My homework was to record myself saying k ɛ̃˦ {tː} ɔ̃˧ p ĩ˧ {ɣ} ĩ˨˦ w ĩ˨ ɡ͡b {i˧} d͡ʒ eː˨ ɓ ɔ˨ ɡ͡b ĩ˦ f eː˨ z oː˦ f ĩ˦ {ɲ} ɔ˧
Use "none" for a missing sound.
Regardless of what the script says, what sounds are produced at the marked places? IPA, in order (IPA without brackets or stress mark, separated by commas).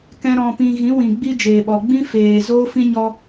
ɾ, ɣ, i˦, ɲ